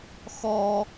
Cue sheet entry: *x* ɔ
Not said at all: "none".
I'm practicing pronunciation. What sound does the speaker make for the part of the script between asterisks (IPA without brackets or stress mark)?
x